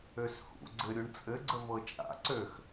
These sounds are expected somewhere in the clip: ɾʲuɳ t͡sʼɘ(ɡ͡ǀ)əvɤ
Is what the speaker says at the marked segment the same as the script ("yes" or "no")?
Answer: yes